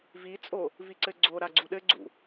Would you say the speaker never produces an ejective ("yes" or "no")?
no